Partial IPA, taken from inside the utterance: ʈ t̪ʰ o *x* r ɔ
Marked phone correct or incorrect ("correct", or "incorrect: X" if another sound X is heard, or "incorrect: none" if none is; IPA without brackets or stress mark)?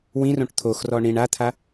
correct